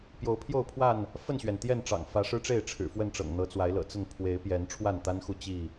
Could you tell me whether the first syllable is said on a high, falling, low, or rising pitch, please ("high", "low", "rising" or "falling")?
rising